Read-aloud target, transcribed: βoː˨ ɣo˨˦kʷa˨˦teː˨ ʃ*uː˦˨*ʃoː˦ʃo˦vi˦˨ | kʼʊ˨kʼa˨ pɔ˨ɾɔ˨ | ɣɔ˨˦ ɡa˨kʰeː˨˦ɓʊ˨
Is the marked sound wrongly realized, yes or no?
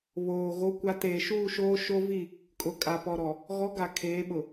no